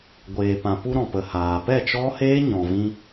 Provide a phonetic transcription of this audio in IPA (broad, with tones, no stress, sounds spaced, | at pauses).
ɡʷ eː˨ p ã˨ p u˧ ɾ ɔ̃˨ p ə˨ h aː˨ p ɛ˦˨ t͡ʃ ɔ˦ h eː˦ ɲ ɔ̃˨ v ĩ˧